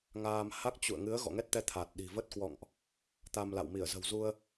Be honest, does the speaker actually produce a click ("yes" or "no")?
no